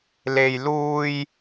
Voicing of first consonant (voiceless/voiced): voiced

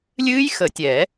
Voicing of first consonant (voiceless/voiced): voiced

